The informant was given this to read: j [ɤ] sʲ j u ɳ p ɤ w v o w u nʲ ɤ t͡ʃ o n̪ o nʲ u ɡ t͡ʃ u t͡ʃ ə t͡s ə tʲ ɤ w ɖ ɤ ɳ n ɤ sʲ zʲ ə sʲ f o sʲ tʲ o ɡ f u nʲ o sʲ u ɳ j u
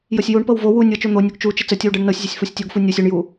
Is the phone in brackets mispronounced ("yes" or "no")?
no